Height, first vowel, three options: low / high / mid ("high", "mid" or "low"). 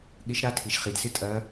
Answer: high